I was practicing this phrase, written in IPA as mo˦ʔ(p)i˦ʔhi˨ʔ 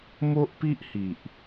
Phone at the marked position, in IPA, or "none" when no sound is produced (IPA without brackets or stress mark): p